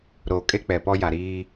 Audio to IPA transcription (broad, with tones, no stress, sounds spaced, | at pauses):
ɾ oː˨ kʼ e˦ k͡p ɛ˨ p ɔ˦ j a˨ ɾ iː˦